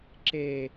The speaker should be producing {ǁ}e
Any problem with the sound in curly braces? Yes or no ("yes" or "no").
no